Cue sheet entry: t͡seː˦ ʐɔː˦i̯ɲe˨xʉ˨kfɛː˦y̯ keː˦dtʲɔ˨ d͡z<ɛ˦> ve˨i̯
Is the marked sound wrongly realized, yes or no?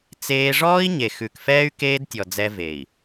no